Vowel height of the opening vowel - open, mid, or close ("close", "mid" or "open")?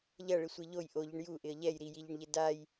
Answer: open